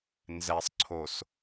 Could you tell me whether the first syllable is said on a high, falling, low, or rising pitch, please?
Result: low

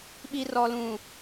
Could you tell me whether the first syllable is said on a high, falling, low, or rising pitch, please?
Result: low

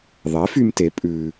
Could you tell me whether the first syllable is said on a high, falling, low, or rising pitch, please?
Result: rising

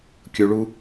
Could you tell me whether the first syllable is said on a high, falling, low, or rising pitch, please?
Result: low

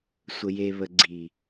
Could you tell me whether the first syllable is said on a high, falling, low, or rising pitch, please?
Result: low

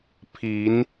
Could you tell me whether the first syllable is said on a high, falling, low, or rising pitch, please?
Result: rising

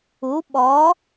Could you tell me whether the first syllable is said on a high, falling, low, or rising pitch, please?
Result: rising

